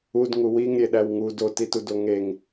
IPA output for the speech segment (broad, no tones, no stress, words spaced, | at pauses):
ud ŋuwiŋɾʲeɗæw ŋu dotitu doŋeŋ